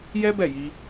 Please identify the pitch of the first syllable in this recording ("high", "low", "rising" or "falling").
high